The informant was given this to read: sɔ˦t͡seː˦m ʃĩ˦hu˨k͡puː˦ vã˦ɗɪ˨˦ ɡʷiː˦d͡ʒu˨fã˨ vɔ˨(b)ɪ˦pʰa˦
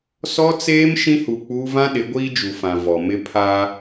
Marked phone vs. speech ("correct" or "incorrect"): incorrect